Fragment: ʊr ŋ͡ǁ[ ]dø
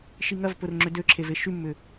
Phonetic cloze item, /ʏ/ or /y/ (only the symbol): ʏ